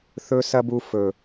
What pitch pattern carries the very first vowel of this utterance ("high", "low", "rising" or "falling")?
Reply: high